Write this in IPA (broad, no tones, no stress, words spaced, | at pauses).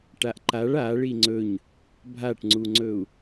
ʈaʔǃaɭ a ɭiŋ͡ǀɵɲ | bʱaʈŋ͡ǀuŋ͡ǀɵu̯